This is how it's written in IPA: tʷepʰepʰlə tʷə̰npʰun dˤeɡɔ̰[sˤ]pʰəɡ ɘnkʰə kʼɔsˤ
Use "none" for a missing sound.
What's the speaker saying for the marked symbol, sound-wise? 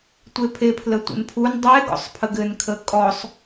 sˤ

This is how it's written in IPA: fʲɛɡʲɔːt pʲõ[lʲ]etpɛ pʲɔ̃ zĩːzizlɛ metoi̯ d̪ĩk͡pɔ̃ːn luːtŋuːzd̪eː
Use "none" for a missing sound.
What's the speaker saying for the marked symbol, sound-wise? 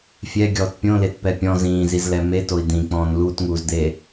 l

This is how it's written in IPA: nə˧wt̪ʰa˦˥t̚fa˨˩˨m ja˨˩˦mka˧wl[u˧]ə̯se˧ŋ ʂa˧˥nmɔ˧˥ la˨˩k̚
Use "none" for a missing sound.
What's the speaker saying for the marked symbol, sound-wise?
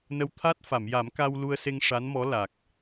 u˧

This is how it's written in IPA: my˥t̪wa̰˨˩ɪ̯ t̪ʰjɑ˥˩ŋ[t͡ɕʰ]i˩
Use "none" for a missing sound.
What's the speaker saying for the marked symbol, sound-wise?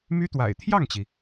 t͡ɕ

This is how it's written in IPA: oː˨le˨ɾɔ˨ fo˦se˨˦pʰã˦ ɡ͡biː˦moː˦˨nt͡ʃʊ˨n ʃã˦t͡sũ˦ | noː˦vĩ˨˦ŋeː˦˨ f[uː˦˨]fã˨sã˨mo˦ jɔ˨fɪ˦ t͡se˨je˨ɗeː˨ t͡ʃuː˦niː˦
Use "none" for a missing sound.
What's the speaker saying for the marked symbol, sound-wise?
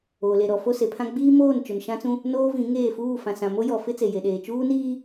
uː˦˨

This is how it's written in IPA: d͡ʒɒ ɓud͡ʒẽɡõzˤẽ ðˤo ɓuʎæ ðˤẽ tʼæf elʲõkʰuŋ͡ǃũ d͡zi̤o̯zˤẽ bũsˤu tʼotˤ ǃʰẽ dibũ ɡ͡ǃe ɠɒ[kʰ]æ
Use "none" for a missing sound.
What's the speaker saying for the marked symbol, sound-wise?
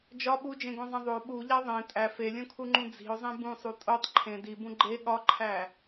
ǃʰ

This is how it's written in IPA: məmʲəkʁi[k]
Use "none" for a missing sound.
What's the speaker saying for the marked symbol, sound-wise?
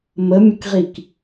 k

